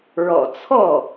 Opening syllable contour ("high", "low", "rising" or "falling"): low